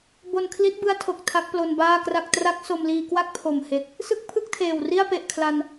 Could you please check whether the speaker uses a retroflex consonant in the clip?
no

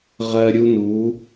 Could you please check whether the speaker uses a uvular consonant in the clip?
yes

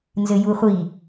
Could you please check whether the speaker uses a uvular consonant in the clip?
yes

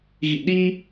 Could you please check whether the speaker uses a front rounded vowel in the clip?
no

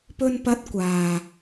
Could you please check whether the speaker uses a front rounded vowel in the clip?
no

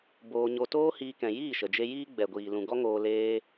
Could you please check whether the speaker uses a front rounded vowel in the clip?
no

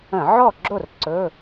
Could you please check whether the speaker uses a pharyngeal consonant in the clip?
yes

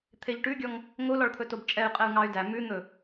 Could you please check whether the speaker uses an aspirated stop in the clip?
yes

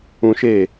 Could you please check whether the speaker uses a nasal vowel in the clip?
yes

